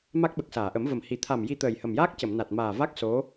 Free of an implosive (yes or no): no